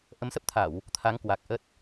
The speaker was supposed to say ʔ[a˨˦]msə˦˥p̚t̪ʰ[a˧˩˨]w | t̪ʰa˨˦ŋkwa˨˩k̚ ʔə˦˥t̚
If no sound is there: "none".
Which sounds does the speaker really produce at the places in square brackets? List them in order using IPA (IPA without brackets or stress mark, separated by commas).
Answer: ə˨˦, a˧˩˨